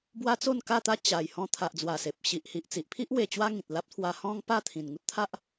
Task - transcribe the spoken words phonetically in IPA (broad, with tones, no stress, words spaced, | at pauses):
bwa˦t͡so˥˧nka˥˧t̪a˦ t͡ɕa˨˩j hɔ̃˧t̪ʰa˨ʔd͡zwa˨˩ se˨p̚ ɕi˨ʔhi˨ʔt͡si˨ʔpʰi˦ʔ we˧t͡ɕwa˦ŋĩ˨t̚ la˦p̚t̪ʰwa˧ hɔ̃˦ŋ pa˥˧t̪ʰĩ˨˩n ŋu˦t̚t̪ʰa˦ʔ